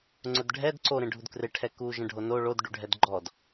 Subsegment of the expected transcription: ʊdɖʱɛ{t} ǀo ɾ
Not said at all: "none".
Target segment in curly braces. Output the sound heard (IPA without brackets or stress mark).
d